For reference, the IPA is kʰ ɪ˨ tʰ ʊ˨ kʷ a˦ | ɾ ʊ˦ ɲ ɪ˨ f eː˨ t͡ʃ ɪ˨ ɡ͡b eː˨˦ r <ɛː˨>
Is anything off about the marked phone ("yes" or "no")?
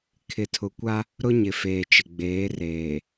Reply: yes